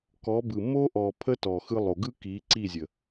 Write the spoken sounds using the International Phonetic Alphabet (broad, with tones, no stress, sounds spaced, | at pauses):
k ɔ˨˦ b ɯ˨ m o˦ ʔ ɔ˨ pʰ ə˦ t ɔ˨ x ɯ˧ lˠ o˨ ɡ ɯ˦ k i˨˦ ǀ i˦˨ zʲ ə˨